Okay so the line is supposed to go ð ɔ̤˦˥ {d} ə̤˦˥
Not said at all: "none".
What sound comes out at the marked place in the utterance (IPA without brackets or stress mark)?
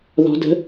d